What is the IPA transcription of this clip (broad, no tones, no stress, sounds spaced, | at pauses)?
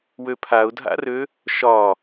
w ø pʰ a ʊ̯ dʱ a̰ r ø | ʃ ɒ